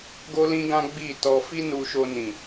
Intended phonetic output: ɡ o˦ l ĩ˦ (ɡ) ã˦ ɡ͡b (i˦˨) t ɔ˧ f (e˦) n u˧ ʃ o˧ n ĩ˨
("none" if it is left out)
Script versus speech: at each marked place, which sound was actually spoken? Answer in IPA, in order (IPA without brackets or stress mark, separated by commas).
ɡ, i˦˨, i˦